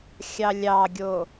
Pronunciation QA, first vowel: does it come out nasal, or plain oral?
oral